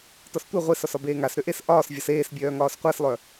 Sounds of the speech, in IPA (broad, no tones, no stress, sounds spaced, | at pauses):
t ɒ s tʷ e ʁʷ e s ɒ s ɒ b eː ŋ a s ɾ ʏ ʔ e s ʔ ɒː s vʲ ɒ s eː s bʲ œː ŋ ɒː s qʷ æ s lˠ œ